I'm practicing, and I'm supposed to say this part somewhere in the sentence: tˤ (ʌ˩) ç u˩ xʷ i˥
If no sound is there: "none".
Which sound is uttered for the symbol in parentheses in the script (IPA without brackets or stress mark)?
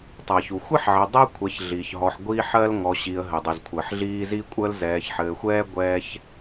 ʌ˩